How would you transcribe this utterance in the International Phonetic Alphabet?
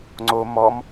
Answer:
ŋ͡ǀo mɔm

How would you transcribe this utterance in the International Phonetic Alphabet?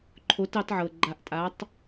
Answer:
ǃʰo˨˥tɑ˨˥tʕɤ˨ ɡ͡ǃa˨˥ʔtʼa˨˥tˤ

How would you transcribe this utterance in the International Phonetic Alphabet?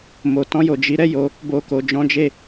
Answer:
mo˨tɔ̃˧jo˨ d͡ʒi˨˦ɾɛ˦jo˧ | bo˧ko˨d͡ʒɔ̃˨˦d͡ʒe˦˨

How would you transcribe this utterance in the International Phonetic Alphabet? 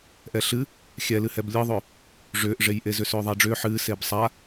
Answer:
ʔɛɬɨ | xʲɛlɨhɛb lʲɨðˤʏː | ʐʏːʔʐejʔe zʏsʏːðˤaɖ͡ʐʏː ħɨː sebsˤa

